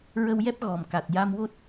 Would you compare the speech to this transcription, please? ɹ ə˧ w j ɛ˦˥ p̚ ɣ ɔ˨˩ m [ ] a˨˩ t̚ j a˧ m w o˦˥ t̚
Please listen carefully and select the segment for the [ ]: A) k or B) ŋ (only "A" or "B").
A